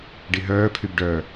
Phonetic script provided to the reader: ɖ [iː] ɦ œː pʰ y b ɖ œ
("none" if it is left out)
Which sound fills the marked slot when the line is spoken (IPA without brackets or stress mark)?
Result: i